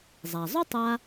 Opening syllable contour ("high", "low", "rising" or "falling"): low